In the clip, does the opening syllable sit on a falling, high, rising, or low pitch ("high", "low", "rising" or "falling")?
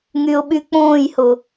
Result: low